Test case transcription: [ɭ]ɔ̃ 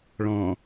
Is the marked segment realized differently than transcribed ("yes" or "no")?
no